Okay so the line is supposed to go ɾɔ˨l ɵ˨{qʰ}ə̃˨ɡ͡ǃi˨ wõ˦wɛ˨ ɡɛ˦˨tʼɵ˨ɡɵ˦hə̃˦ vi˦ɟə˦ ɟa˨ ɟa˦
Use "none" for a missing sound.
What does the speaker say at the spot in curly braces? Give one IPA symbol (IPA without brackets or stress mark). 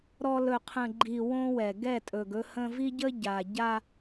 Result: qʰ